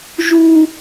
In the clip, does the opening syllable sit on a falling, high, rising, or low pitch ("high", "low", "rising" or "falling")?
high